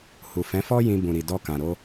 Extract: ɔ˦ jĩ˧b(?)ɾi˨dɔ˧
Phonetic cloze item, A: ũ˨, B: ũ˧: A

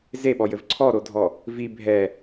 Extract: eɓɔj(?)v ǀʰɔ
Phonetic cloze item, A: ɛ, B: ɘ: B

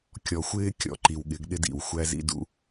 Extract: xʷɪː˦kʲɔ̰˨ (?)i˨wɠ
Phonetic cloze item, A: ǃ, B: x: A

